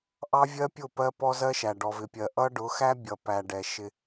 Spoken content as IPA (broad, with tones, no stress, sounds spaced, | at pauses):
ʔ ɑ˦ vʲ ɜ˦ pʲ ʊ˦˨ p ɜ˦ p ɔ˦ z ɜ˦ ʃ æ˨ ɖ ɔ˨ v ɪ˨ pʲ ɜ˨ ʔ ʌ˦ ɖ ʊ˨˦ x æ˦ bʲ ʌ˨ p æ˨ ɖ ɛ˨ ʃ ɪ˦